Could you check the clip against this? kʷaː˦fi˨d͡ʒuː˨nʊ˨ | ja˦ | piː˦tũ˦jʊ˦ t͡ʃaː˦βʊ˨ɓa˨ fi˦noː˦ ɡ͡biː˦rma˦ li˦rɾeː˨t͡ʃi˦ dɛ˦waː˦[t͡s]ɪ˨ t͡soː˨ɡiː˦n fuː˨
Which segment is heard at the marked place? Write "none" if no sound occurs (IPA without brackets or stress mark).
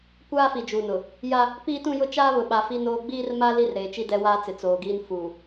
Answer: t͡s